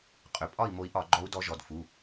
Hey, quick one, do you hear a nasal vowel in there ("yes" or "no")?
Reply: no